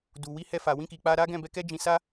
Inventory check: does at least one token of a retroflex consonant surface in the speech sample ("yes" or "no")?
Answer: no